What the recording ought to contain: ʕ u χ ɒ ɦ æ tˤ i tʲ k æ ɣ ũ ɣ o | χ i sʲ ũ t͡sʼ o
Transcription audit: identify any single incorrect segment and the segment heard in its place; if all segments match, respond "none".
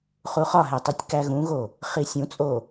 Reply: ʕ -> χ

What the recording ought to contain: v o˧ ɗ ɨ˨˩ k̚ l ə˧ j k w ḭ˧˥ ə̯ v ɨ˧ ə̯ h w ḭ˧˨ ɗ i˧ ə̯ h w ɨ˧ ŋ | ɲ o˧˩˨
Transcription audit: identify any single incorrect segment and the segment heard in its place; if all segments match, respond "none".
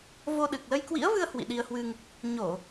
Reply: none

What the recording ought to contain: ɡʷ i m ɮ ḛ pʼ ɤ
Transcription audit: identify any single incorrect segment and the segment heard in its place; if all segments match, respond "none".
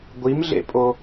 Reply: ɤ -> o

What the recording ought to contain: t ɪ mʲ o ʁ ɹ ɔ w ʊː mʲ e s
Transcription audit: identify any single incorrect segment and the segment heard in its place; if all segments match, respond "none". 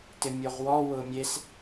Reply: ɹ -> w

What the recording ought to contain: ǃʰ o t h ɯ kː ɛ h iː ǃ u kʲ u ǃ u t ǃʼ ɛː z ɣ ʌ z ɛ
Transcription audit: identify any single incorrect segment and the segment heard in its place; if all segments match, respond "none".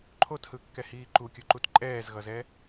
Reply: none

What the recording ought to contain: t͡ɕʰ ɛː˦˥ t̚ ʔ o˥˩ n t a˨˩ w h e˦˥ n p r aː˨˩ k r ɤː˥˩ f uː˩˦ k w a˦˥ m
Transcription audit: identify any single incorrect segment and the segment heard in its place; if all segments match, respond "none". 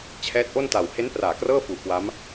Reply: none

